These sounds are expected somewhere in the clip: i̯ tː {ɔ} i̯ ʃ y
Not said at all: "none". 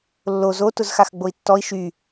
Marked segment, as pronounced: ɔ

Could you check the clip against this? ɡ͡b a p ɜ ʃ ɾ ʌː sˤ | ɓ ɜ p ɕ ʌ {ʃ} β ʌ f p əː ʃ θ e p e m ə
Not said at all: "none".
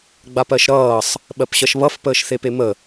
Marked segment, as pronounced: ʃ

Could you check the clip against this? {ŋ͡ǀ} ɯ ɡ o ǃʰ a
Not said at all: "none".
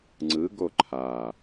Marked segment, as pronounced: ŋ͡ǀ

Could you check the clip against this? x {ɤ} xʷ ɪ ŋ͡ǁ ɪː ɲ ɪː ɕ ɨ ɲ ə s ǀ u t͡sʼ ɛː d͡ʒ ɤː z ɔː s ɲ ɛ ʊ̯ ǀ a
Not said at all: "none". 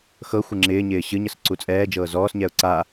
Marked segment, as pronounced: ɤ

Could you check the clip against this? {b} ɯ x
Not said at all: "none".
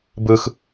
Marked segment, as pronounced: b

